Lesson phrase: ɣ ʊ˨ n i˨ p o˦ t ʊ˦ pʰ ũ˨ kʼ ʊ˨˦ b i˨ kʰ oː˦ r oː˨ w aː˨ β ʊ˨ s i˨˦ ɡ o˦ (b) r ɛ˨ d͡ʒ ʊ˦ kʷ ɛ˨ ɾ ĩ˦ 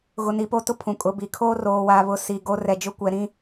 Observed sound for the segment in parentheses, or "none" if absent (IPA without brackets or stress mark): none